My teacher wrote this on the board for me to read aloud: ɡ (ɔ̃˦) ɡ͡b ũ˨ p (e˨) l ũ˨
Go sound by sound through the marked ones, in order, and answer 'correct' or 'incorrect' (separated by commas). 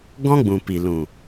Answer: correct, incorrect